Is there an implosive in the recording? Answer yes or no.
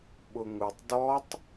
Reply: yes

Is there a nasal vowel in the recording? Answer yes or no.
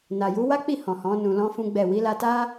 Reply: yes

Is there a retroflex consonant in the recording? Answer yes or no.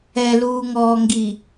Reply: no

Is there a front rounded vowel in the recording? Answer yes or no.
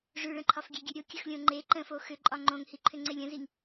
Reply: yes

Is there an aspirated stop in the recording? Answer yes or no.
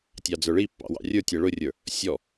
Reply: no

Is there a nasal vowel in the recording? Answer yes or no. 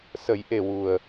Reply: no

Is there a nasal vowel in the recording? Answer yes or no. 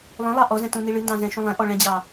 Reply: yes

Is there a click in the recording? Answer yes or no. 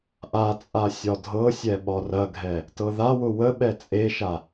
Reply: no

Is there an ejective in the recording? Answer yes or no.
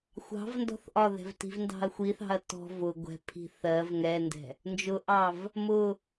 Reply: no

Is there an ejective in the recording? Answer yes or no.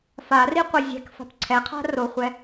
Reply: no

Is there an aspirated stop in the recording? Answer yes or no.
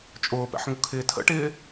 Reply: yes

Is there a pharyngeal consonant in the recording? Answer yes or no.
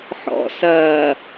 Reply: yes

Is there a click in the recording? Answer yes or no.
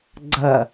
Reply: yes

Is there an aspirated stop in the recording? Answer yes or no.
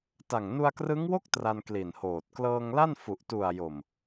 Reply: no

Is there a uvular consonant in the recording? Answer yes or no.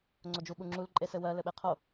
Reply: yes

